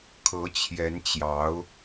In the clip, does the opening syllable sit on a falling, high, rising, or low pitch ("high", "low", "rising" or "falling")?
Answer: rising